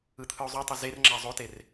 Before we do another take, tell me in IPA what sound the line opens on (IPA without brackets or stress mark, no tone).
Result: ɯ